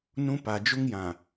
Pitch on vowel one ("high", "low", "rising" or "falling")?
high